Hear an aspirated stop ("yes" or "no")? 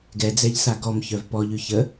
no